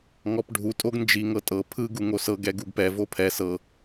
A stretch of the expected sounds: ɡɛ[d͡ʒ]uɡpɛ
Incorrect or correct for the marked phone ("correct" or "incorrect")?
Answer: incorrect